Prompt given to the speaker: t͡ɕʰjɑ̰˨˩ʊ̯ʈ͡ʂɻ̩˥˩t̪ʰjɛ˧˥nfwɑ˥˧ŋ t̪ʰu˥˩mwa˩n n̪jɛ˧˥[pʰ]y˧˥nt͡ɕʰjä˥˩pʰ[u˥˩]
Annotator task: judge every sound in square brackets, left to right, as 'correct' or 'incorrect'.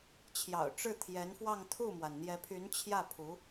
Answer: correct, incorrect: u˧˥

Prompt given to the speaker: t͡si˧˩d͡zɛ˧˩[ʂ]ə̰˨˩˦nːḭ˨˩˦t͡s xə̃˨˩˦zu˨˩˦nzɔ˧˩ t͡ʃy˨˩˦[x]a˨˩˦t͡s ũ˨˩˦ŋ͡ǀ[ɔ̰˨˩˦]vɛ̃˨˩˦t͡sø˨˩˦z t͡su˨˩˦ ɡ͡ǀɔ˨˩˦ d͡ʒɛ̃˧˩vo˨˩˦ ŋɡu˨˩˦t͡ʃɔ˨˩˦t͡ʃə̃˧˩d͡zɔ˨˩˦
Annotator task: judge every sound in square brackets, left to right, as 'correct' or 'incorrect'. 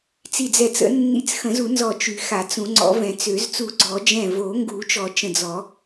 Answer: incorrect: t͡s, correct, correct

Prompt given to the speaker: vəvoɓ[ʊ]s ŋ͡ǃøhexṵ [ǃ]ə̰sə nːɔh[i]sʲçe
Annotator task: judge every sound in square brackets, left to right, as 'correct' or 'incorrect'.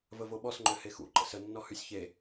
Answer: incorrect: ɔ, correct, incorrect: y

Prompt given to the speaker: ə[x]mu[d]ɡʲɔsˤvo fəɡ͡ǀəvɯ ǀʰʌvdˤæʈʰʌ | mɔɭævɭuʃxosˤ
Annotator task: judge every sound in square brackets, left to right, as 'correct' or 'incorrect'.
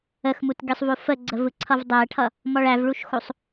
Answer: correct, incorrect: t

